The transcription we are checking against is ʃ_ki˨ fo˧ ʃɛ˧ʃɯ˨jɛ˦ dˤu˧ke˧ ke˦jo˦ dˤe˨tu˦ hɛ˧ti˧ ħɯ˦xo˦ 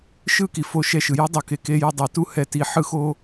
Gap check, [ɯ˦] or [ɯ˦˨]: ɯ˦˨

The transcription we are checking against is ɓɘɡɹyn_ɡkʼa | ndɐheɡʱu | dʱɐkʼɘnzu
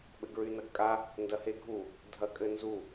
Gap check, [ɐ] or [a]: ɐ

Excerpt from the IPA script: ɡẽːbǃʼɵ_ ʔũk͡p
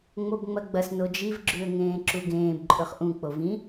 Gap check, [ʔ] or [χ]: χ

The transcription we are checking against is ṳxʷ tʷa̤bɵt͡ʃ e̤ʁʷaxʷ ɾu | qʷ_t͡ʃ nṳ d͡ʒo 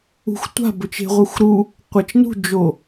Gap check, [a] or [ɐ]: ɐ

